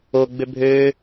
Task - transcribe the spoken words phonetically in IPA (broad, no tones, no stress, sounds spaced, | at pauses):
o ɡ͡b ø bʱ øː